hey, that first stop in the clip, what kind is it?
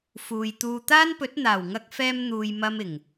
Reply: plain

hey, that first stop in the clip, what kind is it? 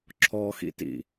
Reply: click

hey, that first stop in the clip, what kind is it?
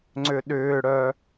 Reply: click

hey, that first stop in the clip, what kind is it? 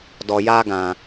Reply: plain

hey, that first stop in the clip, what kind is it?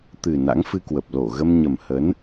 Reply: plain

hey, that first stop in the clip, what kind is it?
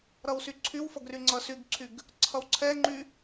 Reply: click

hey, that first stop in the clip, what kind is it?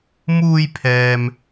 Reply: aspirated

